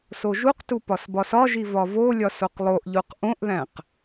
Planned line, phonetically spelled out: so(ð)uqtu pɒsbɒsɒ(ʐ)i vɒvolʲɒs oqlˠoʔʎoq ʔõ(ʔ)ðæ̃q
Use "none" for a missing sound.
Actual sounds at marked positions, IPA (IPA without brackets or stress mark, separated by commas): ʒ, ʒ, ʔ